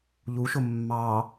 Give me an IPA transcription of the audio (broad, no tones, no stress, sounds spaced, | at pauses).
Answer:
ʎ u ʃ ʊ mː ɑ